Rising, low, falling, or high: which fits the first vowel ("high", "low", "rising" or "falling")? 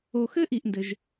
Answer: low